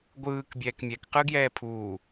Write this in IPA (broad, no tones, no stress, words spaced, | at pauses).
ɡʷɯːk bʲɛːkmʲɛk qɯɡjɛːpʰuː